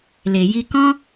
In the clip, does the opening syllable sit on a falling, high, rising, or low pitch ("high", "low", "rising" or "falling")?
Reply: low